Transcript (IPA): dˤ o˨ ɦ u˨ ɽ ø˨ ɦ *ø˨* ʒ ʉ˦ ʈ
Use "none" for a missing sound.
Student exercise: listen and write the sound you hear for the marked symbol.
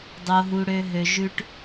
ø˨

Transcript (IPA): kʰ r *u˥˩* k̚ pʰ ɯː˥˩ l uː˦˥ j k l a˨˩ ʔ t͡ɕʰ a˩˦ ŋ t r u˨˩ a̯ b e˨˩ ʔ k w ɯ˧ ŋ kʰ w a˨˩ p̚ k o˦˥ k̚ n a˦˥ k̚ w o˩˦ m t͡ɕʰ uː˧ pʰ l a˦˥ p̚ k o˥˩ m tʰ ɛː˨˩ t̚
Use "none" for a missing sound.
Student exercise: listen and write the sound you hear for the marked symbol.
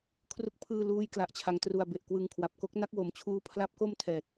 u˥˩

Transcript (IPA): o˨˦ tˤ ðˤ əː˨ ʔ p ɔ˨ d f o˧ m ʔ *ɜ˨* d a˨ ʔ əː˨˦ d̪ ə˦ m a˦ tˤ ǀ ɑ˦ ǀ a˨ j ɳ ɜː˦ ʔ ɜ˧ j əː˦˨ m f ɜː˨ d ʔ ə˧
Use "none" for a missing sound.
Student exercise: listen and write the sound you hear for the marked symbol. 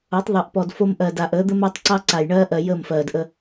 ɜ˨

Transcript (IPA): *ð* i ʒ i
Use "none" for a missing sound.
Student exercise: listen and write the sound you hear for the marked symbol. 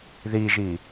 ð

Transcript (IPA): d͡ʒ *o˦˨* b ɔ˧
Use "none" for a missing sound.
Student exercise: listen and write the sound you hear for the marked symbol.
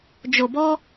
o˨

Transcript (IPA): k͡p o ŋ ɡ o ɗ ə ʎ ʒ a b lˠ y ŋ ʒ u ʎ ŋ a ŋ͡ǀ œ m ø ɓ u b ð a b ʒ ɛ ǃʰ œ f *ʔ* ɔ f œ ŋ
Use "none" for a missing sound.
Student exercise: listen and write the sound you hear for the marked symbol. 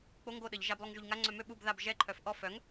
ʔ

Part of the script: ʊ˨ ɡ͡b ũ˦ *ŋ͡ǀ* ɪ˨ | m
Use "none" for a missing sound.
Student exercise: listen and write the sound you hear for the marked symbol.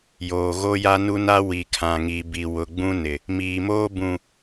n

